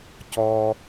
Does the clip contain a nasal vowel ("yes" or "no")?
no